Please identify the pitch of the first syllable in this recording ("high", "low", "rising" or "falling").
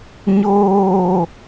falling